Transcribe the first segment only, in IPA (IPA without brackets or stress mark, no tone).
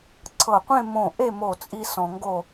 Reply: ǀʰ